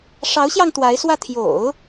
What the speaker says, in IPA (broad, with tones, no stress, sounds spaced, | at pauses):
ʂ ɑ˧˥ ʊ̯ ɕ j ɑ˧ ŋ t̪ w a˧˥ ɪ̯ s w ä˥˩ t̪ʰ j o̰˨˩˦ ʊ̯